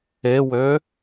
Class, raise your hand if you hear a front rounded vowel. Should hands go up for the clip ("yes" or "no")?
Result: yes